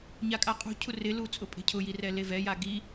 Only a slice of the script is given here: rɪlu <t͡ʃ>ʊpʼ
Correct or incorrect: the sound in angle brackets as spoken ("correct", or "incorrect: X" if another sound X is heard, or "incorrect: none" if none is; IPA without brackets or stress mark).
incorrect: t͡sʼ